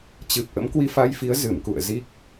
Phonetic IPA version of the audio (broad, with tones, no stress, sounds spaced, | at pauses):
t͡ɕ ɨ˨˩ p̚ ʔ ə̰˧˥ m k w i˧ f a˧ j f i˨˦ ə̯ z ɨ˧˩ m k ṵ˧˨ ə̯ z i˦˥ k̚